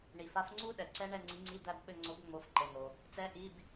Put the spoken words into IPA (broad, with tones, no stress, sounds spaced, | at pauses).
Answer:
ɳ i˩ f a˨˥ f ŋ͡ǀ u˦˥ ɗ ɛ˩ ǀ ɛ˦˥ ɳ ɛ˦˨ ŋ͡ǀ i˨˥ ŋ͡ǀ i˧˥˧ d̪ æ˦˨ b ɓ ɘ˦˨ ŋ͡ǀ o˨˥ b ŋ͡m o˨˥ f ǃ ɘ˩˧˩ n̪ o˩ | t͡s ɛ˨˥ ʔ i˩˧˩ b